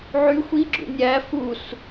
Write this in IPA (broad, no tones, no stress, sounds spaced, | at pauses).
ʕ y xʷ i ɡ͡ǁ ṵ nʲ æ f u s